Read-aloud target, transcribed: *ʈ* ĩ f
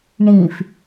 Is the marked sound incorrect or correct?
incorrect